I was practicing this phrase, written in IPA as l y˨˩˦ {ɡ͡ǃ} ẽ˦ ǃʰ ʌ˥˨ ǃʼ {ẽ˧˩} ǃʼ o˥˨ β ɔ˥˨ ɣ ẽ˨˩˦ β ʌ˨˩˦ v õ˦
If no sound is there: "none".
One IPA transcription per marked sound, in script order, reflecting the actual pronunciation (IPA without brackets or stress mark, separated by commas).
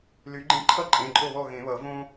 ɡ͡ǃ, ẽ˩˧˩